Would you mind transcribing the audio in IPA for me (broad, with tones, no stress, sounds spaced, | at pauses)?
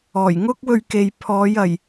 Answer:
ɔː˨˩ j ŋ ʊ˥ k̚ w ɵ˧ ɥ k e˨ j pʰ ɔː˨˧ j ɐ˨˩ j